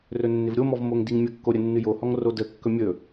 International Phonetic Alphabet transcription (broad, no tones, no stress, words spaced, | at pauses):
rɵnːɪvɾʲomɔv moŋdiŋmʲəkːo ɾʲənːɨjohɔŋ rodəkːɵ mʲɵ